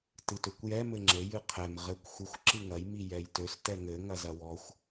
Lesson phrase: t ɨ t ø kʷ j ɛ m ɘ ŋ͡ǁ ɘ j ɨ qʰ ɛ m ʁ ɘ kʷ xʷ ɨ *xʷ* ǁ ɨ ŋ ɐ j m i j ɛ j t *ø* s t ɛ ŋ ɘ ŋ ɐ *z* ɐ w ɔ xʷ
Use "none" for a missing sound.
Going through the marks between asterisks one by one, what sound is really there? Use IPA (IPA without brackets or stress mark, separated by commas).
xʷ, ø, z